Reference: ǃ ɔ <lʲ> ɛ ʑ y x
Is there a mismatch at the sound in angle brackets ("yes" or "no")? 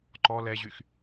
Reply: yes